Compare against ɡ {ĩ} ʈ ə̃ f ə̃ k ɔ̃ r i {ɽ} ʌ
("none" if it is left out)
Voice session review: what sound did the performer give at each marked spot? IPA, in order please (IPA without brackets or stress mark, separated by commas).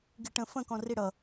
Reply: i, ɽ